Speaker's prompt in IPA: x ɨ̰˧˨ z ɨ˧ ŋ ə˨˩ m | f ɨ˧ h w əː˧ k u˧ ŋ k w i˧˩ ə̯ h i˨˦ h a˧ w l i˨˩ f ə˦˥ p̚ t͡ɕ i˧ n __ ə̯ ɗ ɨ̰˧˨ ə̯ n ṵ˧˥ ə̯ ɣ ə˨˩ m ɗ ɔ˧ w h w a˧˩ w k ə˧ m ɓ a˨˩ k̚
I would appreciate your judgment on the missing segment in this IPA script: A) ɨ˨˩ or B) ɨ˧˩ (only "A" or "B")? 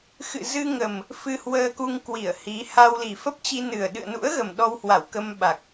A